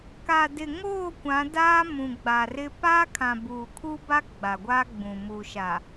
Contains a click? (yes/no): no